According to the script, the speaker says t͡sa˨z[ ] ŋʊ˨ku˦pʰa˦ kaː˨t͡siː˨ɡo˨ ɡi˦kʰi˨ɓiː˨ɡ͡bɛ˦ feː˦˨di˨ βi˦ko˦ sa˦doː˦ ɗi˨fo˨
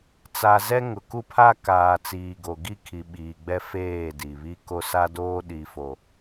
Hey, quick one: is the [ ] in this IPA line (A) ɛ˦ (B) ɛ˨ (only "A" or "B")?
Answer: A